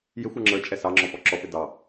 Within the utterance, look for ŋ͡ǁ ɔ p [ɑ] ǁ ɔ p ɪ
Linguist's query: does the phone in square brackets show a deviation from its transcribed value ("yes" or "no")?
yes